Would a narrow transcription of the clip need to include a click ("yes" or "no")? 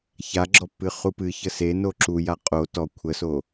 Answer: yes